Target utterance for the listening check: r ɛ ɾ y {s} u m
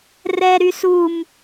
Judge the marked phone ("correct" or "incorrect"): correct